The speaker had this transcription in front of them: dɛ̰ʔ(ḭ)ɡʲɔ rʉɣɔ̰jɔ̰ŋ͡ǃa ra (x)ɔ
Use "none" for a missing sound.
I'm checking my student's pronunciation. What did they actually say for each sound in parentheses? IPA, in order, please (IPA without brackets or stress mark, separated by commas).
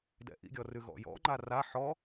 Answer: ḭ, ħ